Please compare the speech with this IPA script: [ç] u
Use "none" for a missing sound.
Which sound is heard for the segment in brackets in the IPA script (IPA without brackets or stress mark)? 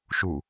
ʃ